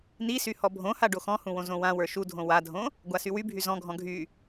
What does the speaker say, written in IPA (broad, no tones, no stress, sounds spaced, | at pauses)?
n i s y h ɔ bʱ õ h a ɖ o x ɔ̃ h ũ w õ z õ w ã w ə˞ ʃ u dʱ õ w a dʱ õ | ɡʷ a s y w y bʱ y z ɔ̃ ɡʱ ɔ̃ ɡʱ y